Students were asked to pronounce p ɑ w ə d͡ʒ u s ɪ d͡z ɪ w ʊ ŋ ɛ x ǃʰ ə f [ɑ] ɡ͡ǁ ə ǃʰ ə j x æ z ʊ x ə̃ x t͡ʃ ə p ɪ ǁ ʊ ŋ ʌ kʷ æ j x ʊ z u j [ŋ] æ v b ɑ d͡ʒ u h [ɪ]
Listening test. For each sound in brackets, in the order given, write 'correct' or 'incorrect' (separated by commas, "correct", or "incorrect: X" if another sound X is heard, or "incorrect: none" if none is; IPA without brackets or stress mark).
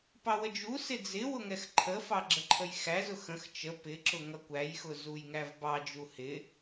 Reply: correct, correct, correct